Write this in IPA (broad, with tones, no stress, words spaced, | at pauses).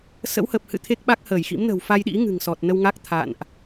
sə̰˧˥whə˨˩p̚hɨ̰˧˨ t̪ʰe˦˥k̚ɓa˦˥k̚həː˧˩jxḭ˧˥m nə̤˨˩wfa˧jɗḭ˧˥ ŋɨ̤˨˩ŋsɔ˨˩t̚ nə˧wŋa˦˥k̚t̪ʰa̰ː˧˨nʔ